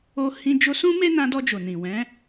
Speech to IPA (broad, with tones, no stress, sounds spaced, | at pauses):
o˧ h ĩ˧ d͡ʒ o˧ s ũ˦ m e˦ n ã˧ d ɔ˧ d͡ʒ o˨ n ĩ˨ w ɛ̃˨˦